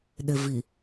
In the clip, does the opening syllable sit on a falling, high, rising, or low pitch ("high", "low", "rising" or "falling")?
low